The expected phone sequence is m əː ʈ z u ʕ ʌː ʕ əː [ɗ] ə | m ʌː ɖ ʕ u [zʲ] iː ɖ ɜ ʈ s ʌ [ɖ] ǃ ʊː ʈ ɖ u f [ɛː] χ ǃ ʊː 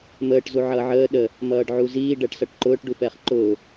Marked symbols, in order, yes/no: yes, no, no, yes

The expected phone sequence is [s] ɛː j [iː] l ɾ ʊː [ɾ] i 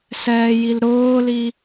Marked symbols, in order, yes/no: yes, no, no

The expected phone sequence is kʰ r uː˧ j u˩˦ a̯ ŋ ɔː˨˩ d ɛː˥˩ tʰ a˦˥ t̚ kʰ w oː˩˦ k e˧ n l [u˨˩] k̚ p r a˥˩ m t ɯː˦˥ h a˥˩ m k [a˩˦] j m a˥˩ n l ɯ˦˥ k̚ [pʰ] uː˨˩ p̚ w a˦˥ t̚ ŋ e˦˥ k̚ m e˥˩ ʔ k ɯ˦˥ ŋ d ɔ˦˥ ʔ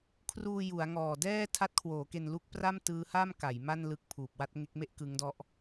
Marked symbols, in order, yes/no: no, yes, yes

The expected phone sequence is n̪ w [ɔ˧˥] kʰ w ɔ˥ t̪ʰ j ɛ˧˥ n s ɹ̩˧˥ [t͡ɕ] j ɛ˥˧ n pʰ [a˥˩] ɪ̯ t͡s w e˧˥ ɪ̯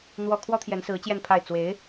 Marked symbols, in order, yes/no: no, yes, yes

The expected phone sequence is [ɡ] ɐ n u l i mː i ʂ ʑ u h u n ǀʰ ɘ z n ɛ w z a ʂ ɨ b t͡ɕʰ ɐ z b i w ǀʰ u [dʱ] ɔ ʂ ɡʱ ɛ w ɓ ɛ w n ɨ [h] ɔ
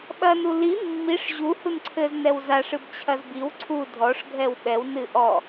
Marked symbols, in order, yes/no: no, yes, no

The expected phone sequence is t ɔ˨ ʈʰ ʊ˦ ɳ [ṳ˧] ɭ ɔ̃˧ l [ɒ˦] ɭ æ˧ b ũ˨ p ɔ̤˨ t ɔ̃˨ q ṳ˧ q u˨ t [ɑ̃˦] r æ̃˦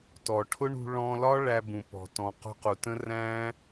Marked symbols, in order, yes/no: yes, yes, no

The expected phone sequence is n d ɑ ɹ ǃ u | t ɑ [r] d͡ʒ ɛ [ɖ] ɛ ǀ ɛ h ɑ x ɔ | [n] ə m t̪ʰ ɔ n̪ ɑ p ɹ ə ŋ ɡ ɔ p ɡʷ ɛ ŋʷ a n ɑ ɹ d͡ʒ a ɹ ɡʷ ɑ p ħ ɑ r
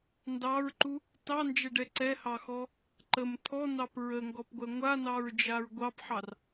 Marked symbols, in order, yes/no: no, yes, no

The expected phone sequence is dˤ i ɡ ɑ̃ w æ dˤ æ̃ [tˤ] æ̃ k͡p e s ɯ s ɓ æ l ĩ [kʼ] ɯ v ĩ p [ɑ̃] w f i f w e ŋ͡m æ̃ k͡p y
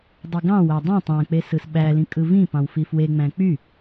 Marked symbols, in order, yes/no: yes, yes, yes

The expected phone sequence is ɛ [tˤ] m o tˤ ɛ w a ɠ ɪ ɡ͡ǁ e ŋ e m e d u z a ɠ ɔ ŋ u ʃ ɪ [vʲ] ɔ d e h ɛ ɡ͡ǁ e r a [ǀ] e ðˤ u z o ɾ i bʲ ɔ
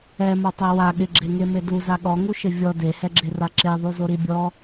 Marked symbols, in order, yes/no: no, yes, no

